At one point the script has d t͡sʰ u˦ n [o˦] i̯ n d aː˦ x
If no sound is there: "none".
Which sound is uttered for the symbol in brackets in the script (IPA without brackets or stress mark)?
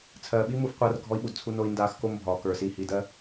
o˦